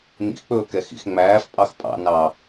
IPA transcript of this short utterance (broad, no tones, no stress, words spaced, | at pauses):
nḭxk͡pɵːkɛxḭx ŋ͡mæːfpʼɑx pʼɑ̰nɑ